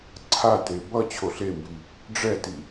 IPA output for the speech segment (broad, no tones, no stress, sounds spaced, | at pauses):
ǀʰ a t e b ʌ t͡ɕʰ o ɬ e m b i | ɖ͡ʐ ɛ t i